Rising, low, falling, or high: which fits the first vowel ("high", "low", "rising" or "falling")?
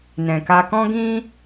low